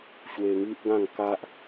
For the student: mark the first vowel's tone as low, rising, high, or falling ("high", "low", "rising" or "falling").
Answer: high